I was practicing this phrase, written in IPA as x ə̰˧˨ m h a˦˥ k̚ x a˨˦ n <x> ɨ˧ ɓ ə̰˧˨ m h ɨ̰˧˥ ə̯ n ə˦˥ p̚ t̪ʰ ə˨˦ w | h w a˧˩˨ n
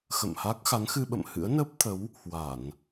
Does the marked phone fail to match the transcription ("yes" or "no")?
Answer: no